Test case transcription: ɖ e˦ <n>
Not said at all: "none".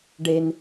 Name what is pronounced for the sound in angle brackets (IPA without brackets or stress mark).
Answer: n